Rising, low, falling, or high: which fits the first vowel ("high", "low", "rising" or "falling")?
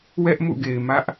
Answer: high